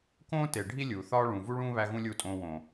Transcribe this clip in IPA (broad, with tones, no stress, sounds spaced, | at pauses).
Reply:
k õː˦ t e˨ ɖʱ i˦ lʲ uː˨ θ ɒː˦ ɭ ũ˨ v u˦ ɭ ũː˦ β æ˦ ɣ ũ˦ lʲ u˦˨ tʼ õː˧ w õ˨